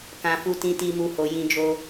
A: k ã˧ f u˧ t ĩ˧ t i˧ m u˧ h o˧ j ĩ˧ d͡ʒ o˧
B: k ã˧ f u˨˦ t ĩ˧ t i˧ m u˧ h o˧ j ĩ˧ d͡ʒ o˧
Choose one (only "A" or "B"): A